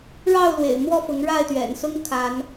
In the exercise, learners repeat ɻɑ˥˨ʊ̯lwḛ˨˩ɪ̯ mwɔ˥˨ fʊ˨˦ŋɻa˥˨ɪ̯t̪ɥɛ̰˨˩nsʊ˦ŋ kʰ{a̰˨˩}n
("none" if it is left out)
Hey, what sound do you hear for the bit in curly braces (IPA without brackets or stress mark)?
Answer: a˨˦